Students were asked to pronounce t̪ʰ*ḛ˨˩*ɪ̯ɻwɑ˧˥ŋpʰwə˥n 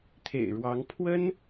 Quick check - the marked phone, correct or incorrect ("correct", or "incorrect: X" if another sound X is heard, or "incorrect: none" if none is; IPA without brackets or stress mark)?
correct